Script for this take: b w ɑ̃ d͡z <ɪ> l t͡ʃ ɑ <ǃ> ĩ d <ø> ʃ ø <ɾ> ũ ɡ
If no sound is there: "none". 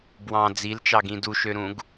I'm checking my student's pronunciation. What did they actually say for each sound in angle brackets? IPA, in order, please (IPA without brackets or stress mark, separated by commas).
i, ɡ, u, ɾ